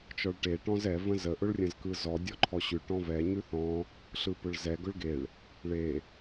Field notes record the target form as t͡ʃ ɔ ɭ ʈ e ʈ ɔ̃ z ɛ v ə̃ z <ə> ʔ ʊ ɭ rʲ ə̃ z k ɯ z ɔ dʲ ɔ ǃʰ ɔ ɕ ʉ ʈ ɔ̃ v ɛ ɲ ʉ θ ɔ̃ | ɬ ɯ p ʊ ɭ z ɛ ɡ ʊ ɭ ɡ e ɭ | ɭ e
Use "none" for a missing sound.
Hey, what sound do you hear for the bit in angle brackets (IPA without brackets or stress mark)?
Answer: ə